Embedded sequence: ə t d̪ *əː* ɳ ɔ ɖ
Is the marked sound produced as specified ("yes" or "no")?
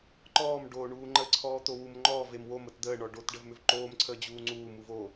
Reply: yes